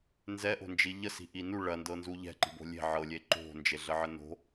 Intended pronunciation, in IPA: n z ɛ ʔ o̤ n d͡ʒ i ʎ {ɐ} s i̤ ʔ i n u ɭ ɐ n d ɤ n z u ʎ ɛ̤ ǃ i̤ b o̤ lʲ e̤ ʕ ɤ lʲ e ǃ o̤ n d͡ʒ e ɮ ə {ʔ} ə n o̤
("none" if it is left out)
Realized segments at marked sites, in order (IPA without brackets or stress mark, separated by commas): ə, ʕ